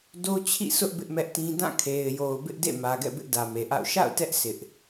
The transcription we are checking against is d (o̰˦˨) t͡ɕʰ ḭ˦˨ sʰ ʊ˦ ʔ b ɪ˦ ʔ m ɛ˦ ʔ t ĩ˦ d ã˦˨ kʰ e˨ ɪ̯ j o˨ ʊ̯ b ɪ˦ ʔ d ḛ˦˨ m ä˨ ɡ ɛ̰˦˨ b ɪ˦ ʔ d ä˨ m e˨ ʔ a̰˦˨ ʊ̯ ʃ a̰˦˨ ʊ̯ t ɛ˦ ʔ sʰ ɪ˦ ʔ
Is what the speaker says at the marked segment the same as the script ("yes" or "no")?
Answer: no